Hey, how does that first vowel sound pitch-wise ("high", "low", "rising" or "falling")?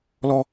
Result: high